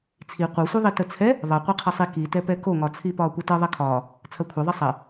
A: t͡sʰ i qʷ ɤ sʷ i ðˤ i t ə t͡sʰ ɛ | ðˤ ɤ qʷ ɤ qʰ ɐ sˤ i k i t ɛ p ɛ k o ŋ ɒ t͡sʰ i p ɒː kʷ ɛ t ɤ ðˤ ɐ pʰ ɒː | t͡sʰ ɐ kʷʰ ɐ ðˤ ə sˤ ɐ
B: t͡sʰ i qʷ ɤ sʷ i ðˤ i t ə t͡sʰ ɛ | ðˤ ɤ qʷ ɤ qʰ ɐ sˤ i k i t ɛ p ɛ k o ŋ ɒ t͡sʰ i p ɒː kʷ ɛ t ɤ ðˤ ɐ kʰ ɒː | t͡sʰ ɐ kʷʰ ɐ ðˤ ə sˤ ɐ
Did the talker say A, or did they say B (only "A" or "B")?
B